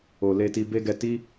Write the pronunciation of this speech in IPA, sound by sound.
o˨ l e˧ t i˧ b e˦ ɡ ɛ˧ t i˦

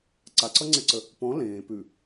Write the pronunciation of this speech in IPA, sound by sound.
ǀ a ǀ ʌ ŋ͡ǀ e ǀ ə | p ɔ̃ l ẽː p ʉ

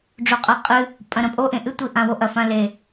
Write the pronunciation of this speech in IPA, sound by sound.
ɖ͡ʐ o qʼ a qʼ ɨ | pʼ ɐ̃ ɾ ɐ̃ pʼ o ʔ ẽ ʔ ɨ tʷ i ʔ ã w o ʔ ɐ f ã l e

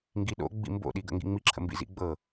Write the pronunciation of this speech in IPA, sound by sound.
ŋ ɡ i ɗ o̰ ɡ͡b ḭ m b o̰ ɗ i ɡ ə̰ ŋ ɡ ḭ ŋ͡m i ǁʰ ə̰ m b ḭ z ḭ ɡ͡b ɤ

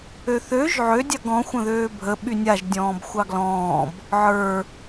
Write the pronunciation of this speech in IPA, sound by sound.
ø θ ø ʒ ʕ ø dʲ ɑ ɡ ɔ̃ xʷ ə̃ ð øː bʱ ə ɓ y nʲ a ʒ dʲ ɔ̃ː b xʷ ɑ ɡ l ɔ̃ː b | ʕ ə˞

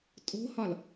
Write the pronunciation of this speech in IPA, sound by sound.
tʼ o̤ h ɒ l

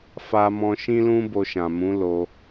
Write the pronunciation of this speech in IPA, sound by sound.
f a˧ m ɔ̃˧ ʃ ĩ˦ l ũ˦ b o˧ ʃ ã˨ m ũ˨˦ l o˧

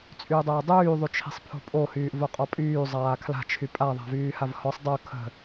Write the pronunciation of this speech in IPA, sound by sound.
t͡sʼ yː dˤ əː dˤ yː ðˤ y t͡ʃʰ i̤ sˤ pʰ o̤ pʼ o h yː ʔ v o qʼ ɔ pʼ yː zˤ aː kʰ l a̤ t͡ʃʰ y pʼ a ðˤ a̤ v yː h a v h ɔ sˤ dˤ o kʰ ə̤

